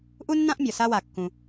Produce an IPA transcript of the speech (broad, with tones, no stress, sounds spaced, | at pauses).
ʔ u˥ nː ã˥ ʔ mʲ ɔ˩ s a˥ w a˩ kː ũ˩